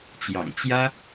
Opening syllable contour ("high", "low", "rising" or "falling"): low